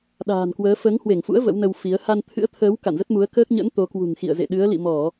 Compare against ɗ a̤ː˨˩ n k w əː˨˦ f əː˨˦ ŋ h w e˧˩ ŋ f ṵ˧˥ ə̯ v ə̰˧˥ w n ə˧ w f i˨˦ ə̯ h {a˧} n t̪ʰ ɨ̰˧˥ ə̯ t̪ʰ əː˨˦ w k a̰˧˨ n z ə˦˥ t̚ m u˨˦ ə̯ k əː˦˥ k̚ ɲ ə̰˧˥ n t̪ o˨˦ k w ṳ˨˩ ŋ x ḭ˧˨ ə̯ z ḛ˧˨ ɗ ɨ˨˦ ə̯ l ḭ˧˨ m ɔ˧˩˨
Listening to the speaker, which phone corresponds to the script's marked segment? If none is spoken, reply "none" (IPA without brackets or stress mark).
a˧